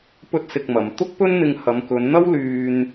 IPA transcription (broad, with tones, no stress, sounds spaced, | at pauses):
p ɵ˥ t̚ s ɪ˧ k̚ m ɐ˨ m t̪ ʊ˥ k̚ p ɵ˥ n n̪ ɪ˧ ŋ h ɐ˨˧ m k ɵ˨˧ n n̪ ɐ˥ w l yː˥ n